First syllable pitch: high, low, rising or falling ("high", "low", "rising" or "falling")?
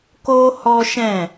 high